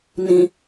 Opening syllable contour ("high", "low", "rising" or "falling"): low